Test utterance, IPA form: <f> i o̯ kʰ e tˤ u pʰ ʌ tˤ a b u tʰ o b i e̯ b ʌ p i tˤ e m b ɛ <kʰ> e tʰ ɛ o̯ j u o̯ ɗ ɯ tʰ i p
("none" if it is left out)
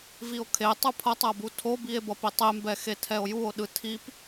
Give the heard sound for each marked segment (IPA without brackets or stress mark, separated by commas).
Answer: v, x